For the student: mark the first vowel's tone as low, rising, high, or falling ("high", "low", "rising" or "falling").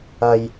low